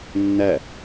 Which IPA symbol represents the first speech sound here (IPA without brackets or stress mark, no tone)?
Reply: nː